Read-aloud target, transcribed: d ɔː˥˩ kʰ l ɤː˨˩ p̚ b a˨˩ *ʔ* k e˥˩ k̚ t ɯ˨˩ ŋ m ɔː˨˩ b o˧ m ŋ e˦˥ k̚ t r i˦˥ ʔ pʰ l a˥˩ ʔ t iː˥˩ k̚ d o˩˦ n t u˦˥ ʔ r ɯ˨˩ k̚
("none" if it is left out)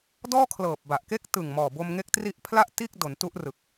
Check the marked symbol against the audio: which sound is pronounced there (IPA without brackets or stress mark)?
ʔ